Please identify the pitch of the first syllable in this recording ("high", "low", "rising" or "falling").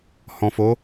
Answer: low